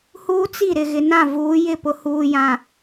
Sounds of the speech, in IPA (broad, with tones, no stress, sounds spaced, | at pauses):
h uː˦ t͡s i˦˨ ɾ ɪ˨ ɣ ɪ˨ n ã˦˨ v uː˨˦ j ɪ˦˨ p ʊ˨ h uː˨ j ã˨